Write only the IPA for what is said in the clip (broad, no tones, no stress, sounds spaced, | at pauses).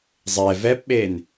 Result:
zˤ ɛ v ɛ p ɓ e n